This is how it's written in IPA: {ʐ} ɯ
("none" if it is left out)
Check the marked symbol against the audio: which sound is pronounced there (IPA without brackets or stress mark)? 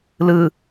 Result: l